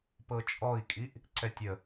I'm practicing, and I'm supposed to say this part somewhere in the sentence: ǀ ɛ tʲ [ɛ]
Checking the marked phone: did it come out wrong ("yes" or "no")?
yes